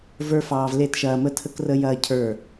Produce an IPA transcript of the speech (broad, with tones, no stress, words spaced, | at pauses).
və˞˦fɑː˧v le˦˨tʃɐː˧mə˦tʰə˦k rə˦jɐː˦ cʰə˞˦˨